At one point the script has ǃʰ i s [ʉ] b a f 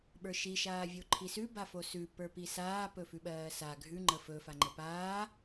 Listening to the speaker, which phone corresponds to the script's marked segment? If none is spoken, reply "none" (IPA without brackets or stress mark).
ʉ